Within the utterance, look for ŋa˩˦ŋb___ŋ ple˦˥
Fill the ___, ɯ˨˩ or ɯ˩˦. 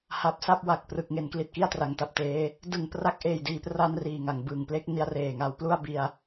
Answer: ɯ˨˩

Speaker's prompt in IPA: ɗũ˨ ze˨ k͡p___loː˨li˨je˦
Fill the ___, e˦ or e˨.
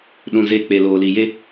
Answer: e˨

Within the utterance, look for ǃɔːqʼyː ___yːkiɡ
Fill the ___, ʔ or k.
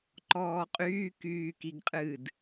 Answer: k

